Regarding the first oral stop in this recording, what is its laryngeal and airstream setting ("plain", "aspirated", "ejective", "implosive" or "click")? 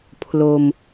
aspirated